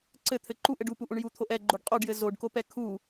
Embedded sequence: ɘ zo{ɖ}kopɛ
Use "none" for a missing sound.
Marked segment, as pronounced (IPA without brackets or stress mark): ɖ